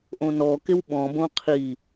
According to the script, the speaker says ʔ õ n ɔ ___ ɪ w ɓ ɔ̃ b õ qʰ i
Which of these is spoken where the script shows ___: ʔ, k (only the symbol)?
k